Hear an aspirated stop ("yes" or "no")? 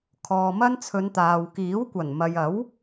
yes